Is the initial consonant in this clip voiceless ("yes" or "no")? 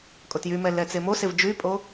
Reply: yes